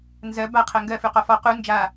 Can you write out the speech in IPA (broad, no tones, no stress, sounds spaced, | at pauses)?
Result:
n z ɜ b a qʰ ɜ ŋ ɡ ɜ f ʉ q ɔ f ɔ q u n d͡ʒ a